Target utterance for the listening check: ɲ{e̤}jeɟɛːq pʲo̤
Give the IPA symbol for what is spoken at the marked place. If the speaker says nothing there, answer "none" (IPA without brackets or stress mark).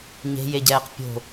e̤